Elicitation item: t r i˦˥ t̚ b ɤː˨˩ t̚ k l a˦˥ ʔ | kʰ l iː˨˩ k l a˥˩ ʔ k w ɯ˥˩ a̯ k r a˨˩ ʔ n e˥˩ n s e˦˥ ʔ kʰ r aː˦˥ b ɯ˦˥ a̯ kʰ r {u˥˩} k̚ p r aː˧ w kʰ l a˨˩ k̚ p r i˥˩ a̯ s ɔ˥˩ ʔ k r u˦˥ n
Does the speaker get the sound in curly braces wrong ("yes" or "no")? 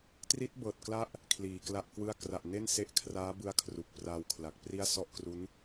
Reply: yes